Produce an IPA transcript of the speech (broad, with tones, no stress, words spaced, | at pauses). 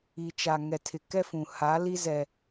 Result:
i˨t͡ʃa˨ ŋɛ˨tʰɪ˨kɛ˦ fũ˨ha˨˦ li˦zɛ˨